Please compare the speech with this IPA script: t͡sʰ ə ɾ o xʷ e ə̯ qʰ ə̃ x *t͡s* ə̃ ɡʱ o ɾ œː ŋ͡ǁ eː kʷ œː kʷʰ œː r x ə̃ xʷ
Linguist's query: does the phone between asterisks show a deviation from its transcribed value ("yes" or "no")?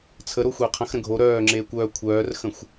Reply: yes